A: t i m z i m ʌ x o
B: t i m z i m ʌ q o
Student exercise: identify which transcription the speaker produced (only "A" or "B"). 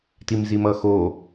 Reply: A